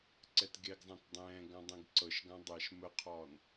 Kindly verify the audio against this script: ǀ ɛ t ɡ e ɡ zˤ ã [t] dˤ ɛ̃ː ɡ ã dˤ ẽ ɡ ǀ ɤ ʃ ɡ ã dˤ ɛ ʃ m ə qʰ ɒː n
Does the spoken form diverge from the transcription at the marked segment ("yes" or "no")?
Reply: no